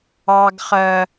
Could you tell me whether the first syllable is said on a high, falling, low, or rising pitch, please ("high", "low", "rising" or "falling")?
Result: high